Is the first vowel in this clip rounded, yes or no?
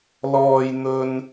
yes